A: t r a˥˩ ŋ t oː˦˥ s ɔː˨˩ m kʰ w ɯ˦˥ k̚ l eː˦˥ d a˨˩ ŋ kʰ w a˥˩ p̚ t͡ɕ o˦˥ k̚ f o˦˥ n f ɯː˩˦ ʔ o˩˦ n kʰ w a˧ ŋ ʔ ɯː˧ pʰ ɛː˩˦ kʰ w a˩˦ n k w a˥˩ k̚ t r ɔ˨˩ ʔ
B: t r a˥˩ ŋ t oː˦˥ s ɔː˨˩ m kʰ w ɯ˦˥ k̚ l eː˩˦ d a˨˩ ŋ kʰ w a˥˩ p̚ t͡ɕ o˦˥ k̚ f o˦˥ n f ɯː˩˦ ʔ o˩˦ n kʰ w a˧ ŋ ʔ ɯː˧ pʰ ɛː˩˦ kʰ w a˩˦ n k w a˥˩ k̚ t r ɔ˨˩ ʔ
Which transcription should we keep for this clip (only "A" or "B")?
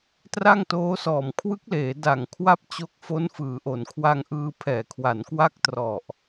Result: B